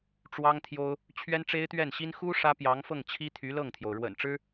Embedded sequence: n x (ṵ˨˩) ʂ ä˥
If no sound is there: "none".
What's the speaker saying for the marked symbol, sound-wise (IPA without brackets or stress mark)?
u˥